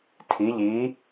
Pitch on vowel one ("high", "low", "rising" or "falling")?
rising